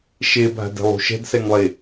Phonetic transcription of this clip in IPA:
ʃ e bʱ a̤ d e̤ lˠ ṳ ʃ ɛ̤ d s ɛ ŋ lˠ e

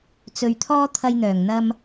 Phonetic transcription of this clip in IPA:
t͡s ɵ˨ ɥ t̪ʰ ɔː˥ t̪ʰ ɐ˧ j n̪ œː˨˩ ŋ n̪ ɐ˧ m

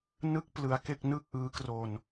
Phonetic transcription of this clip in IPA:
n ɯ˥˩ k̚ p l ɯ˧ a̯ k e˥˩ k̚ n ɯ˥˩ k̚ ʔ ɯː˦˥ k r o˧ n

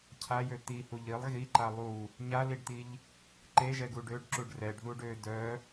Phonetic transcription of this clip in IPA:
cʰ a j ø t̪ i h u ʎ i lˠ ɣ i ǃ a lˠ u | ɲ a l i ɖ t̪ i ʎ | ǃ e ʒ ɛ ɡ u ɖ ø ɖ ǁ u ɖ r ɛ ɖ ð u ɖ ø d œ

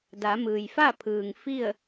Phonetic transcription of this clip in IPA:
d a˩˧ m ɯː˩ j f a˥˨ pʰ ɯː˩ ŋ f i˥˨ ə̯

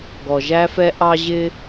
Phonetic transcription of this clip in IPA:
ɡ ɔ˩ ʒ æ˧ f ɛ˧ ʔ ɑ˥ ʑ ɪ˥

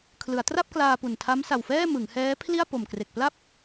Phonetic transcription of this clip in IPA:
kʰ l ɯ˩˦ a̯ t r a˥˩ p̚ k l aː˧ p u˨˩ n tʰ a˦˥ m s a˨˩ w f ɛː˥˩ m ɯ˩˦ ŋ h ɛː˦˥ pʰ l i˥˩ a̯ p o˨˩ m k r e˨˩ k̚ p l a˥˩ p̚

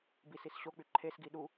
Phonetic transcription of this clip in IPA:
b i s i s ɕ o k͡p y ǃʰ e s ɡ i ɗ u

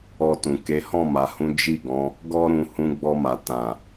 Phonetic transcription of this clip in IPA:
ɔ˧ t ũ˨ k e˨˦ h ɔ̃˦˨ m a˨ h ũ˨˦ d͡ʒ i˦˨ ɡ ɔ̃˨˦ | ɡ ɔ˦ ɾ ũ˧ h ũ˧ ɡ͡b ɔ˧ m a˨ t ã˨

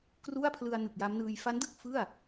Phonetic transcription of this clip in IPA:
k r u˥˩ a̯ pʰ l ɯ˧ a̯ n ɯ˨˩ k̚ j a˦˥ m n ɯː˧ j f a˦˥ n d ɯ˥˩ k̚ f ɯ˥˩ a̯

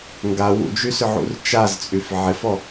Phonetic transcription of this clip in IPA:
ŋ ɡ a w ṵ d͡ʒ y s ʏ ʕ ṵ r t͡ʃ a z t͡sʼ y f ʕ ɪ f ɔ

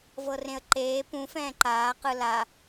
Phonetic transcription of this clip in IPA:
v ɤ r ẽ ə̯ ǃ eː p ũ f ɛ̃ː ǃ aː q ɯ l a

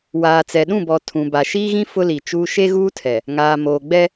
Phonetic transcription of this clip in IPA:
w aː˨ t͡s ɛ˨ ɗ ũ˦˨ b ɔ˨ tʰ ũ˨ b a˨ ʃ iː˦ ɣ ĩ˦ f ʊ˦ l i˨ t͡ʃ uː˦ ʃ e˦ ɣ uː˦ tʰ ɛ˨ | ŋ aː˨ m oː˨ ɡ͡b ɛ˦

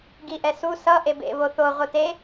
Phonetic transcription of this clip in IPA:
ɡ i ʔ ɛ s u s ʌ ʔ e b ḛ β o θ o ʁʷ ɯ t e

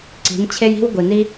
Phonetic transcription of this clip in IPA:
ǀ i̤˨˦ n t͡ɕʰ e˦ j i̤˦ w ɡʷ i˨ n i˦

